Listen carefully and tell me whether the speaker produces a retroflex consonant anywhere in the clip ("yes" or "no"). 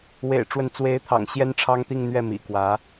yes